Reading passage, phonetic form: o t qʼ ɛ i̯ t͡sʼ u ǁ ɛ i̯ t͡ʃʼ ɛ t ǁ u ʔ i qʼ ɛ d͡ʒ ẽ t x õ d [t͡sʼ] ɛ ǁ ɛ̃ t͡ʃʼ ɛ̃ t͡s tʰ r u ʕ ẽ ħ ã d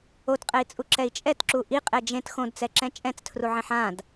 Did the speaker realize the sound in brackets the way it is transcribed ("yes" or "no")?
no